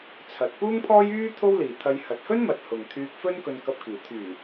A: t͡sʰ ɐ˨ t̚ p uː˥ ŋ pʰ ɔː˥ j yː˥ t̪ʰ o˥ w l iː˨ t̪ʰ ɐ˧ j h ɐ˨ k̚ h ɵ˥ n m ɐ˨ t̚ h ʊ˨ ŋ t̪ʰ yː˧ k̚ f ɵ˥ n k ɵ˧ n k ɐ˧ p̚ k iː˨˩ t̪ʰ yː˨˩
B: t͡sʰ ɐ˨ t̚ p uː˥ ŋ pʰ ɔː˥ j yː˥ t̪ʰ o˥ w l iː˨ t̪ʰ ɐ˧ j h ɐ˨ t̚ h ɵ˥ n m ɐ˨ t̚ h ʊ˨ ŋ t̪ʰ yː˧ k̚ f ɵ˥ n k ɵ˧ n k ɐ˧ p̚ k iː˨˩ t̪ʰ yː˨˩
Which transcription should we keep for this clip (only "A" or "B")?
B